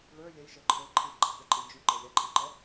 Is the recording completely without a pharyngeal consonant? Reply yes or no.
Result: yes